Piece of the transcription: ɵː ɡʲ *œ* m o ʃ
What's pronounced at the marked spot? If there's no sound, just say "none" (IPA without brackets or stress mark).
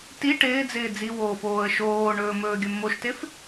ɵ